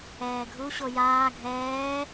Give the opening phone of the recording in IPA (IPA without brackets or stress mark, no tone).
ɛː